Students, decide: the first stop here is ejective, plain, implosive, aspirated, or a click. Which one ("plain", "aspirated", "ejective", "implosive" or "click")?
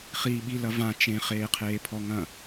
implosive